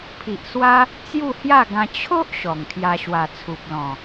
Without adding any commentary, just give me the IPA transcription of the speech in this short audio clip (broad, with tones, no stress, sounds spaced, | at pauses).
pʰ i˨ ʔ s w a˦ | t͡s j u˥˧ h j a˥˧ ɡ ã˧ t͡ɕʰ o˦ ʔ ɕ ɔ˨˩ ŋ kʰ j a˧ ɕ w a˨˩ t͡sʰ u˨ p̚ l ɔ̃˨˩